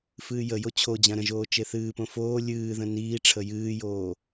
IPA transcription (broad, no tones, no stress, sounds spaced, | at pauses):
f ɨː j ə j o t͡ɕʰ o d͡ʑ ã ɾ ə̃ ʒ oː t͡ʃ e θ ɨː p õ f oː lʲ ɨː ð ə̃ n iː ʈ͡ʂʰ ə j ɨː j oː